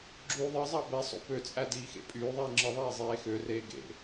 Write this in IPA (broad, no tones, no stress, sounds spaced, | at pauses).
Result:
ɡ͡ǁ yː ðˤ ɯ zˤ ɑ b e sˤ o̰ p ø t͡sʼ æ d iː x ḛ pʼ yː ðˤ iː ŋ͡ǁ ɯ ðˤ eː zˤ eː x ø r eː ɡ ḛ